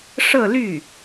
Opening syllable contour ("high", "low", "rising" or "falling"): falling